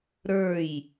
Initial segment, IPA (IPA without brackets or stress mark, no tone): ɾ